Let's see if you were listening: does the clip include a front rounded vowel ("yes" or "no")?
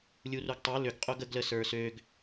yes